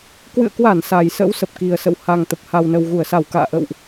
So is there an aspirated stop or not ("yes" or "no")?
no